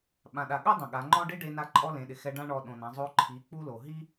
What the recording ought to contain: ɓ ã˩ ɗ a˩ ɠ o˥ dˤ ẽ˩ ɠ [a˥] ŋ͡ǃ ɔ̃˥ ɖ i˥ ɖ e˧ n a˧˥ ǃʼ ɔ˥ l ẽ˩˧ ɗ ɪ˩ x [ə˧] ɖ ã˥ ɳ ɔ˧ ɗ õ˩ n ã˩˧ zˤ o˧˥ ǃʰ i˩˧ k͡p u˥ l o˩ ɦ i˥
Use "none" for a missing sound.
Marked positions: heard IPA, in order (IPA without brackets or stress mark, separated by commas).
a˩˧, ɛ˧